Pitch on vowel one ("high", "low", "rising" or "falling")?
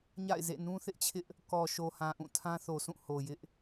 falling